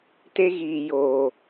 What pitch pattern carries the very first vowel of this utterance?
high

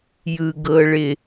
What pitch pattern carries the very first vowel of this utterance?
high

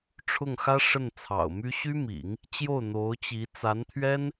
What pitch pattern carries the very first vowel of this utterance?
falling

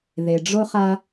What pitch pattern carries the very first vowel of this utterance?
low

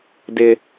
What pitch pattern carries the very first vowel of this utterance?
high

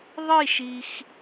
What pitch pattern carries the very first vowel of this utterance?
falling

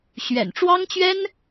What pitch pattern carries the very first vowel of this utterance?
low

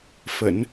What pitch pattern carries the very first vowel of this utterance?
low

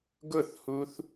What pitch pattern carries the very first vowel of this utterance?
falling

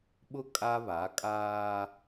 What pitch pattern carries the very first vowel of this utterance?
high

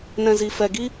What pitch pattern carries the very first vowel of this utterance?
low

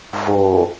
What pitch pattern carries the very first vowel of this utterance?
low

